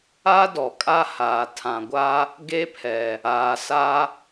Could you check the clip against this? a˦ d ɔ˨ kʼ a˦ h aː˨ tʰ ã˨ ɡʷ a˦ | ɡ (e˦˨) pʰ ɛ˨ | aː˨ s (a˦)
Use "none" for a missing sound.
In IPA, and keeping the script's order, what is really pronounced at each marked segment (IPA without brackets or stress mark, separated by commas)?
e˦, a˦